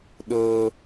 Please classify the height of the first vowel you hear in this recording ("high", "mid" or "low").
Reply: mid